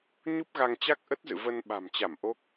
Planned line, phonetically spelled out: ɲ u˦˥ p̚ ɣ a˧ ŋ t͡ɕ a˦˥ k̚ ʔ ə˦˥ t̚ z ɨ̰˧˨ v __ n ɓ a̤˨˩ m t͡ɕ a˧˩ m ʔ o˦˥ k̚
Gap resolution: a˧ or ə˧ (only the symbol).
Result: ə˧